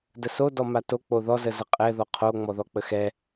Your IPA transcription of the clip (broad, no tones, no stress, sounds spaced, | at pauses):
d ə s o d ɔ m a t o k͡p o ð ɔ z ə z ə qʼ ɛ ð ɔ qʰ o ŋ͡m ɔ ð ɔ k͡p ə x ɛ